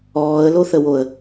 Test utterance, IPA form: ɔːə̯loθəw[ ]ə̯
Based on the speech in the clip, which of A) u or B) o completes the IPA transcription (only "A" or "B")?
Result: B